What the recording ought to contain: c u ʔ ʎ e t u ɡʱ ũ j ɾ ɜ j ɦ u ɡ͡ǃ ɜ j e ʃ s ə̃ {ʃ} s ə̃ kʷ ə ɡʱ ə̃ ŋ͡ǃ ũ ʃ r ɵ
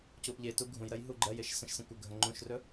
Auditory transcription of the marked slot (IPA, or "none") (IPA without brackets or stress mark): ʃ